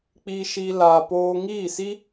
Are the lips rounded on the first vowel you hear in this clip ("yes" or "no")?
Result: no